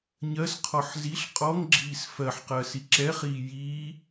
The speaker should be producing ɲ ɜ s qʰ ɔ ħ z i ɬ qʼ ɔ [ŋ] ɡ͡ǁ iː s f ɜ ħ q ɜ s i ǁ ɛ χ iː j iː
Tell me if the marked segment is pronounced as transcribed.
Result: yes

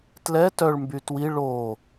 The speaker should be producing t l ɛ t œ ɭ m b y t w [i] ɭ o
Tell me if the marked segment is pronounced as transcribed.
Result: yes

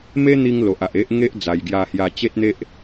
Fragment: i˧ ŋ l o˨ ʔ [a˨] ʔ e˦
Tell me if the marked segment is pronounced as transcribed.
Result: yes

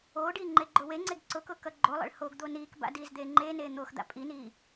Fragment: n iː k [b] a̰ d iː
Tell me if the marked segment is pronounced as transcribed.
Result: yes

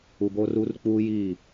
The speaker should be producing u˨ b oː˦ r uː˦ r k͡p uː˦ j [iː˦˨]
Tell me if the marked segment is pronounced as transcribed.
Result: yes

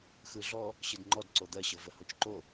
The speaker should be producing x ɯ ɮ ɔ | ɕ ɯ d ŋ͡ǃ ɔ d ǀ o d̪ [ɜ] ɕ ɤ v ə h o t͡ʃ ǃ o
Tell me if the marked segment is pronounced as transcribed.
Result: yes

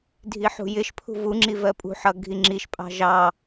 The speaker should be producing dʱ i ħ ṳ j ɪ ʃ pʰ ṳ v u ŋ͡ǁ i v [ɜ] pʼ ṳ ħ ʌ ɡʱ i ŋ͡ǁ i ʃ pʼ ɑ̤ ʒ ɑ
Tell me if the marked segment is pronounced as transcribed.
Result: yes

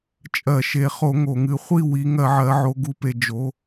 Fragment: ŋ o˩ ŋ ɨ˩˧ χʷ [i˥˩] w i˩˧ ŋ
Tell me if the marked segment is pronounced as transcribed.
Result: yes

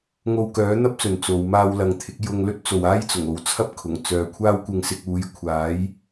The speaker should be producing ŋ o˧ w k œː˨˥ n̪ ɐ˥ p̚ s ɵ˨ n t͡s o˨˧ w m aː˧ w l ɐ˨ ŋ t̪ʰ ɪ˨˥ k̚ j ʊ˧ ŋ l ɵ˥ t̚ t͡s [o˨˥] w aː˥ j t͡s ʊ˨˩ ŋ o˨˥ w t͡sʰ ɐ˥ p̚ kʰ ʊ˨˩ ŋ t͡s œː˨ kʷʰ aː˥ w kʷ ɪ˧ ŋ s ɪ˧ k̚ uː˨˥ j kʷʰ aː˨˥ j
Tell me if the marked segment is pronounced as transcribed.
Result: no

